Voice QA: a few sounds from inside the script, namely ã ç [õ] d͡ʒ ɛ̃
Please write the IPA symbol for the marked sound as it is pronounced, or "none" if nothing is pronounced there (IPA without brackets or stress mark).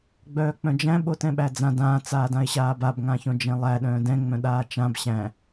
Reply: õ